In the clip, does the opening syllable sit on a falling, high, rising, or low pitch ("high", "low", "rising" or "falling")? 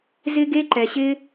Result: high